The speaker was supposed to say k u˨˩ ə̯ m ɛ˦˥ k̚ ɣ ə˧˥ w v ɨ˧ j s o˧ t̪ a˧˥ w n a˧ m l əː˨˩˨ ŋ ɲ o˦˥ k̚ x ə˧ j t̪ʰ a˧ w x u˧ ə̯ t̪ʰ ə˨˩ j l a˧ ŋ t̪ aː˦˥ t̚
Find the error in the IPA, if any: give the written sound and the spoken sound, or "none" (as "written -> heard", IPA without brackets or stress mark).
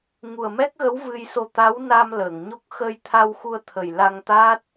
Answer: k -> ŋ